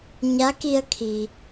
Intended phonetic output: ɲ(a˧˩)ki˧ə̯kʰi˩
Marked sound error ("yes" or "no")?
yes